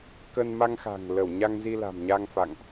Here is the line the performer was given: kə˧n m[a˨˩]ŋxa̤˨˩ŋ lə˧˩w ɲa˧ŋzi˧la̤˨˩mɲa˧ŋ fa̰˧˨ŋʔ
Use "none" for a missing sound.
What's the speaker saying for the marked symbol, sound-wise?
a˧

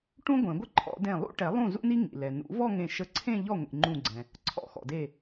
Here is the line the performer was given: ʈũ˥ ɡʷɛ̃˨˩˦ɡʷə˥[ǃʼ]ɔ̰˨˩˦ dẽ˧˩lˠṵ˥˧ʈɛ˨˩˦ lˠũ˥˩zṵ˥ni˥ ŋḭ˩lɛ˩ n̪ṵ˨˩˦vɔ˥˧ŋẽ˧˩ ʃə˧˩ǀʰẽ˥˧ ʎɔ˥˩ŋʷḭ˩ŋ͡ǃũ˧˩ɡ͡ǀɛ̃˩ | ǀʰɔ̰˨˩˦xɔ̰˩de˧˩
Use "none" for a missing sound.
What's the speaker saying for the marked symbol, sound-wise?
ǃʰ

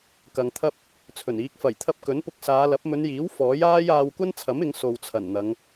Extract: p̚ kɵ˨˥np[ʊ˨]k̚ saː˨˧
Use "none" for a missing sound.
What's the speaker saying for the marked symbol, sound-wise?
ʊ˧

